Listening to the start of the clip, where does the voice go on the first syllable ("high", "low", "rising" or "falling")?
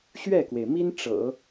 falling